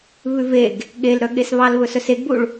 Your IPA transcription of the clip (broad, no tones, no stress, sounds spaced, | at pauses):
β ʉ v e ɡ | ɠ e l ɾ œ ɠ e s β ɑ l β ɵ s œ s e ɡ b u ɭ